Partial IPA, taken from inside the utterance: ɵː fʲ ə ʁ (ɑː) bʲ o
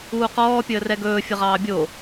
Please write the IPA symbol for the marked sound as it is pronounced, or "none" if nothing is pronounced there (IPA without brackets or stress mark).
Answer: ɑː